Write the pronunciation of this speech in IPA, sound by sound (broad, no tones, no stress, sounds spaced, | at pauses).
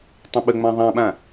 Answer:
tˤ ə̃ ɓ ə ŋ͡m ã ðˤ ã ɓ ã